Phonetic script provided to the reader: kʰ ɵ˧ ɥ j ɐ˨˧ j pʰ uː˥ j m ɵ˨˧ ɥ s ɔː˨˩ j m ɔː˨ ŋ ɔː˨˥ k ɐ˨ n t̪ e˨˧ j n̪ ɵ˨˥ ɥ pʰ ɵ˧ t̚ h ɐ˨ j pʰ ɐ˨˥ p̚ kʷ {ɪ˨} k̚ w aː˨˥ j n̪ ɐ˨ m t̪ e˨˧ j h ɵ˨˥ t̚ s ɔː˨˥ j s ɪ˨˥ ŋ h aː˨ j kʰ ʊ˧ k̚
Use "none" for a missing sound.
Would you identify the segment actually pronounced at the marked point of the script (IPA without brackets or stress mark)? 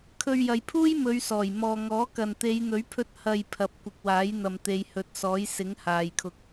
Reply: ɪ˨